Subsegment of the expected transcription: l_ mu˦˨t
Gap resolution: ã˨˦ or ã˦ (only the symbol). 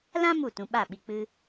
ã˦